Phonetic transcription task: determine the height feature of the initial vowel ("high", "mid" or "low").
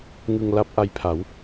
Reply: high